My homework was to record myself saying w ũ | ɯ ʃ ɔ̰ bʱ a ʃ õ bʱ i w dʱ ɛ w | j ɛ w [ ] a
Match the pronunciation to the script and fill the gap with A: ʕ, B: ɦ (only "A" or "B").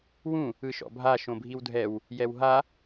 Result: B